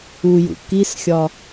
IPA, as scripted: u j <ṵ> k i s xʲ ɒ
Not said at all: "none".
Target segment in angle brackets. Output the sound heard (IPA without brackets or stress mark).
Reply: ṵ